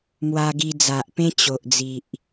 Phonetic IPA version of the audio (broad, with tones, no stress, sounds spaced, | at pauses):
m w a˧ ɡ i˧ d͡z a˨ ʔ p ẽ˦ t͡ɕ o˨ ʔ d͡z i˨ ʔ